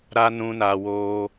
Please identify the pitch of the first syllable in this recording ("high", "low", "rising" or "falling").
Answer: high